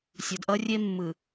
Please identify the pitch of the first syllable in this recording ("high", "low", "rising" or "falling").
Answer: low